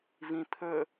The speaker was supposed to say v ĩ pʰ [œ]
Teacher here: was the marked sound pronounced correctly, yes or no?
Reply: no